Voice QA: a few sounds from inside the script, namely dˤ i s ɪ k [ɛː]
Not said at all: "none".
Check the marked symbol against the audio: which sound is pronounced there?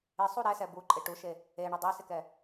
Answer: ɛ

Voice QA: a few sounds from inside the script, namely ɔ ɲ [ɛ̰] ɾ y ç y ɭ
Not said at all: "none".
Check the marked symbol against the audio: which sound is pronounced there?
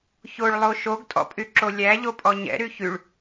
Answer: ɛ̰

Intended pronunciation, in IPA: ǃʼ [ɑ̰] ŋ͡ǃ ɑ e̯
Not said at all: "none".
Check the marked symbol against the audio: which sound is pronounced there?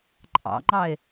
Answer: ɑ̰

